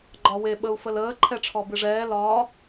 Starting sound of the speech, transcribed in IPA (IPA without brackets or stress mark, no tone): ɡ͡ǃ